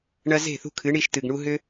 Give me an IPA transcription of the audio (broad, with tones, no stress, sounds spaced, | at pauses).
ɳ ɐ˧ z e̤˦˨ θ ṳ˧ kʰ ɨ˨˦ ɳ i˧ ʃ t ɨ˨ ɡ ɳ u˦ ɦ ʏ˦